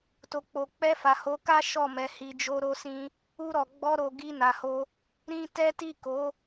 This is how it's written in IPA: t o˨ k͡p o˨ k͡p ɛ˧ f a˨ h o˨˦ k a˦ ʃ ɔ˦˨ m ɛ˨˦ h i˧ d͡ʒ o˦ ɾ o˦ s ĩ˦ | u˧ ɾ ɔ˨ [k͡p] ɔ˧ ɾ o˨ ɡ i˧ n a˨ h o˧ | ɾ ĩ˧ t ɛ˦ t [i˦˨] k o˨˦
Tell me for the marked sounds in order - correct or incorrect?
incorrect: ɡ͡b, correct

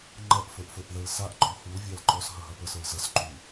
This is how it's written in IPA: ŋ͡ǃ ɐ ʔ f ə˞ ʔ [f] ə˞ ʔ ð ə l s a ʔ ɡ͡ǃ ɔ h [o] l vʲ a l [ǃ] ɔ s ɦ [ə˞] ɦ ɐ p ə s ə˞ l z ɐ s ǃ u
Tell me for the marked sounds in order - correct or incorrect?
correct, incorrect: u, correct, incorrect: ɐ

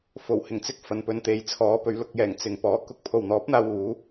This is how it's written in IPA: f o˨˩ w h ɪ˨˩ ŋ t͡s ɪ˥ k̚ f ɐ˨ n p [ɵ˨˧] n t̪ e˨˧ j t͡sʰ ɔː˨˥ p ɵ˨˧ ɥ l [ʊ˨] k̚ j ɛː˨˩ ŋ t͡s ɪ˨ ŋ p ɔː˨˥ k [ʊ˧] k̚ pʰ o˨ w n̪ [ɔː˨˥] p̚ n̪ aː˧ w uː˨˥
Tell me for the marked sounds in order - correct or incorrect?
incorrect: ɵ˧, incorrect: ʊ˧, correct, correct

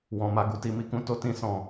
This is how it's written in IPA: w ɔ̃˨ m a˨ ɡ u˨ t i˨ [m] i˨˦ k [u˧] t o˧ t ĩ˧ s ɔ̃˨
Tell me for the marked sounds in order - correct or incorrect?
correct, incorrect: ũ˧

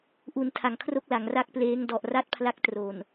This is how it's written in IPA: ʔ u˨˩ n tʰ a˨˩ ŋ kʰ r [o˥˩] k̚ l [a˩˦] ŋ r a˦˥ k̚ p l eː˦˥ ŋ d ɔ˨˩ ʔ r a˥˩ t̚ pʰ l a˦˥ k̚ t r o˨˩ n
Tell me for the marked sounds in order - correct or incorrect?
correct, correct

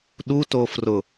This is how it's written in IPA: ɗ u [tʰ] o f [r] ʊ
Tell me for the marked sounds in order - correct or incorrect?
incorrect: t, correct

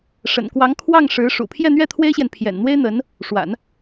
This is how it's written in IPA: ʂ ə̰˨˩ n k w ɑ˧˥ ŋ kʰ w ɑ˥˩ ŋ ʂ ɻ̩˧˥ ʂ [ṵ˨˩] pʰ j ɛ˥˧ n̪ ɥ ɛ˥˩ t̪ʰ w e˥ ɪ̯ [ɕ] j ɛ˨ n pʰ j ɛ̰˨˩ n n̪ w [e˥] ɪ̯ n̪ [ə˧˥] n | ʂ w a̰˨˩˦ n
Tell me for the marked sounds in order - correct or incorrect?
correct, correct, correct, correct

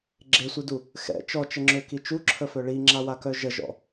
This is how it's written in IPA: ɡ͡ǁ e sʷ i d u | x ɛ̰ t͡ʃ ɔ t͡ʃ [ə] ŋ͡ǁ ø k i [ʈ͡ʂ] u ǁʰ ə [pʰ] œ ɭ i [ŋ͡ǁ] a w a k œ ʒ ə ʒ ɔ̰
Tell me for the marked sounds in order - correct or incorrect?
correct, incorrect: t͡ʃ, incorrect: f, correct

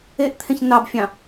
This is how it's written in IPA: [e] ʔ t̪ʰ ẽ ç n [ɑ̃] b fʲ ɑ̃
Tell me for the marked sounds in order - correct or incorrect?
correct, incorrect: ɑ

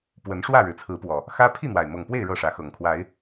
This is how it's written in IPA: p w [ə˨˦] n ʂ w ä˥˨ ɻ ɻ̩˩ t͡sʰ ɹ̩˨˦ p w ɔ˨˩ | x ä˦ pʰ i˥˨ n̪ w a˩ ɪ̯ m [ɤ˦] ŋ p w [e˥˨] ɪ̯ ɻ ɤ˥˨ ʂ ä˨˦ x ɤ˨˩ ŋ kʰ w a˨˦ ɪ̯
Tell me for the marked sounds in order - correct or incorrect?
correct, incorrect: ɤ˨˩, correct

